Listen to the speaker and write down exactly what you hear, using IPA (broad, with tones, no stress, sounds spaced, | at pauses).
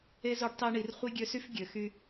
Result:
e˥ z o˦ ɖ tˤ e˦ ɳ i˨ r χʷ i˥ ɡʲ ø˦ s y˥ f ɡʲ ø˩ x y˨